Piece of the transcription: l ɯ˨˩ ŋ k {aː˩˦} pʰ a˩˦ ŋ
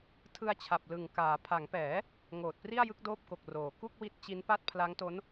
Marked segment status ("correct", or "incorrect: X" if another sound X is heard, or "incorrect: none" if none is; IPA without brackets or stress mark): correct